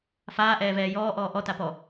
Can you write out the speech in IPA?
faːʔɛːvɛː jɔːʔɔː ʔɔtapɔ

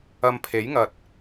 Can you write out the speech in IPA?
ɐ˧mpʰe˨˥jŋɐ˨t̚

